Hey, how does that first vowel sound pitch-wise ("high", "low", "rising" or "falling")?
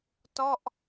falling